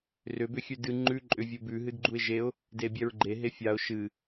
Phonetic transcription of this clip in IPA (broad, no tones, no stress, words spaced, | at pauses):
rʏ bʏxʲʉdɨ ŋ͡ǃʉ ǃʼʏvʲubʉ ɦɨdɡ͡ǃuɪ̯ʒeʊ̯ | debʲɛɹɡ͡ǃe ɦefʲaʊ̯ ʃɨ